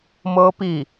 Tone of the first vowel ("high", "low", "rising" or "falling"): high